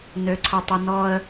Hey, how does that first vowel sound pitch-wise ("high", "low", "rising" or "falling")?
low